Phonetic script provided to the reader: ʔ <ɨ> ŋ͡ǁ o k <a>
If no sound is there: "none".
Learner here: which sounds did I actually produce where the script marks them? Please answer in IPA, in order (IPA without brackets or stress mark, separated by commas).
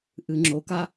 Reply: ɨ, a